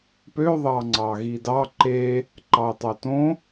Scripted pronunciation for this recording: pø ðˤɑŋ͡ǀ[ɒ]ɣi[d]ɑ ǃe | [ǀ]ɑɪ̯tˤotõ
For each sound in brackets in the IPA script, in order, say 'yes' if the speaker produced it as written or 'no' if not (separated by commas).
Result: no, yes, no